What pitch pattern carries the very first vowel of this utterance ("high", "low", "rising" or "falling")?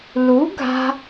rising